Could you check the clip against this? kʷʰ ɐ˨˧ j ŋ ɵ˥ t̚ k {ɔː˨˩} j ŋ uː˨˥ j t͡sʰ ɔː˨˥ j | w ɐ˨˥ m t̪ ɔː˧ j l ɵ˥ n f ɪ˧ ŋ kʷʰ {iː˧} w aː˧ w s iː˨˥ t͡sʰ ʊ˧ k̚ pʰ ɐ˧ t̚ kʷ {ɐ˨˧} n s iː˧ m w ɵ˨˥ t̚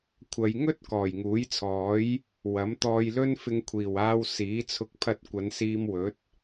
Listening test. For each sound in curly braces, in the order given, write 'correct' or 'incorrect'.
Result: correct, incorrect, correct

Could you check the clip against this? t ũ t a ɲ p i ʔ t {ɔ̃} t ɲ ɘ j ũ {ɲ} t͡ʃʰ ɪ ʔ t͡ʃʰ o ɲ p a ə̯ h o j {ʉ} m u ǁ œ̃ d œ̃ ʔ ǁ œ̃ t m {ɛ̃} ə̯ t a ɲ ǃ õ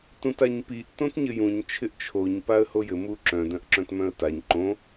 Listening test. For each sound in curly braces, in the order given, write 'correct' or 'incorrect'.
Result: incorrect, correct, incorrect, incorrect

